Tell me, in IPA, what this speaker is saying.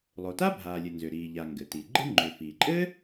lˠ o˩ t a˥ bʱ aː˩ lʲ ɘ˩ n z ʏ˩ ɾ iː˩ ʎ a˩ ŋ ɡ ɘ˩ t i˩ ɡ͡ǃ ɨ˥ ŋ͡ǃ ʏ˩ f i˩ ǃʼ ɘ˥

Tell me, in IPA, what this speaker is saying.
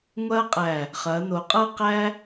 ŋʷ ɐː˥ qʼ æ˧˩ | χ ɐː˩˧ n o˩˧ qʼ ɤ˥˧ q æ˥

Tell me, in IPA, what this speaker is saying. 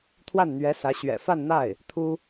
t̪ʰ w a˥˩ n n̪ ɥ ɛ˧˥ s ä˧˥ ɕ ɥ ɛ̰˨˩ f a˥˧ n n̪ a˥˩ ɪ̯ | t̪ʰ u˥

